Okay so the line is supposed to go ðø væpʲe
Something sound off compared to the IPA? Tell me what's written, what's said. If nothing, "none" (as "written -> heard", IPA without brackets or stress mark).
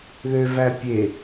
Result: none